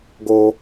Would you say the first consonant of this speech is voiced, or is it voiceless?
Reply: voiced